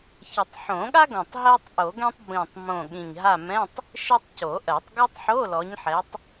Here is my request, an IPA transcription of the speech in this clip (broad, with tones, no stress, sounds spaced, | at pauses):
ç ə˨˩˦ tˤ ħ õ˨˩˦ ɠ a˥ ɡ õ˨˩ tˤ ɦ ɜ˥ tˤ ʔ o˨˩˦ ɡ ɛ̃˥ tˤ b ĩ˨˩ tˤ m õ˨˩ ɠ ĩ˨˩ ɲ ɦ a˦˨ m ɛ̃˧˥˧ tˤ | ʃ ɘ˥ tˤ c o˨˩˦ ʔ ɜ˨˩˦ tˤ ɡ o˥ tˤ ħ o˧˥˧ l ɔ˨˦ ɲ ħ ɛ˨˦ tˤ